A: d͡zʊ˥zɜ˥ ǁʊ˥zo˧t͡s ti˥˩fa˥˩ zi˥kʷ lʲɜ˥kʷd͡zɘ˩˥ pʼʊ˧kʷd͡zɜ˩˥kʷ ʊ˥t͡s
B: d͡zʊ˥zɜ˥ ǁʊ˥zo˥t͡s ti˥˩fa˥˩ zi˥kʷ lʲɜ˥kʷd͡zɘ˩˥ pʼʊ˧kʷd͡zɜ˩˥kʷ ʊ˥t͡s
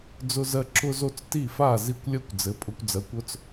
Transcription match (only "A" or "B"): B